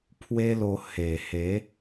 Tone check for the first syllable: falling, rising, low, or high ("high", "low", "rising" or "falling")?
high